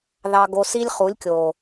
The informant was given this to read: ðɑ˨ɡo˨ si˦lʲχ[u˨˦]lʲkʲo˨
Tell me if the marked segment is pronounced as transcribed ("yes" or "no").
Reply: yes